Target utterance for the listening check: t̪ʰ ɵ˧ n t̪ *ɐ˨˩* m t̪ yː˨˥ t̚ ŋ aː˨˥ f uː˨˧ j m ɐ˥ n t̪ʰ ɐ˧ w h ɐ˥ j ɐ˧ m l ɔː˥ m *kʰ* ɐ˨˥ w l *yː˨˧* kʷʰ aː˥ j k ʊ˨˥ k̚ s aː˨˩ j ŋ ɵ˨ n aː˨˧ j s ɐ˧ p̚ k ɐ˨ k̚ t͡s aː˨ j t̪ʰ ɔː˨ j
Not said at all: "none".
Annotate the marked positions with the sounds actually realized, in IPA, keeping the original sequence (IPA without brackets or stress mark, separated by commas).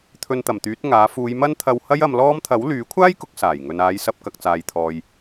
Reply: ɐ˨˩, t̪ʰ, yː˨˥